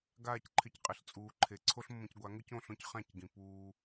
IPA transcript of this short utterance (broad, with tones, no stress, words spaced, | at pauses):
ɡaː˦˨cǃʰɪ˧cqʼɪ˨ɬ t͡sʼuː˨ǃʰe˨ ǀʰo˦ɬmːõ˧cɡʷa˨˦ ŋʊ˦cõ˦˨ɬõ˦c χã˦˨cɡĩ˨ puː˧